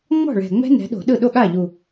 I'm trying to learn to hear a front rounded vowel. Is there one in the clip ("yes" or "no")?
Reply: no